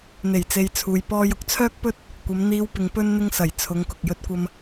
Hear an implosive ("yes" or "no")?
no